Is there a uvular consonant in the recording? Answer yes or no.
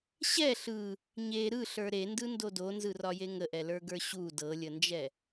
no